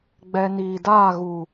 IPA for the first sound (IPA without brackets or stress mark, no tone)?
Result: ɡ͡b